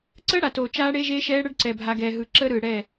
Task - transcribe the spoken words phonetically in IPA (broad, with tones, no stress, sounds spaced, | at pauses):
ǀ əː˦ ɽ a˨ t oː˨ t͡ʃ aː˦ ɽ e˦ ʒ eː˦ ʃ ɛː˦ ɽ ə˦ ɖ ǀ ɛ˨ bʱ a˨ ɡ ɛː˨ ɦ ɯ˨ ǁ əː˦ ɾ ɯː˨ ɽ ɛ˦˨